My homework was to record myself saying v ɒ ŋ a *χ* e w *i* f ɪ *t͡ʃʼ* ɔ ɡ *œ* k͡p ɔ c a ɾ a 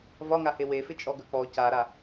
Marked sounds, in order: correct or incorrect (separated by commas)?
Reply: incorrect, incorrect, correct, correct